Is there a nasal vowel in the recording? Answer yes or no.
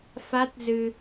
no